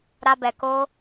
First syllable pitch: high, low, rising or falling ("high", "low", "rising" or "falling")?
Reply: high